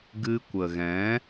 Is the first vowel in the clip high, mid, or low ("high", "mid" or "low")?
high